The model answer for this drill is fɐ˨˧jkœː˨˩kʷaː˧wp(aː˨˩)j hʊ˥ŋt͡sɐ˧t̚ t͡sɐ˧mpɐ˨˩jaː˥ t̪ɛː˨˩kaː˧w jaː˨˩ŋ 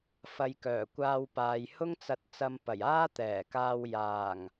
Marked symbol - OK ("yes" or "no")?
no